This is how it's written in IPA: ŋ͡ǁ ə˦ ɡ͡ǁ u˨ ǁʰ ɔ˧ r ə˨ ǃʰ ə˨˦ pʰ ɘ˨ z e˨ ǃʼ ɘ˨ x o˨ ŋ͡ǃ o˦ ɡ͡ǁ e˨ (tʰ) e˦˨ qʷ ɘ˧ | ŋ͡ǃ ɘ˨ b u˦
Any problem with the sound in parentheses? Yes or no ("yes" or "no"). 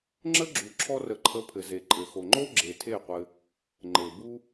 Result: no